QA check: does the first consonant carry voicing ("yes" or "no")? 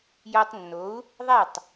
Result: yes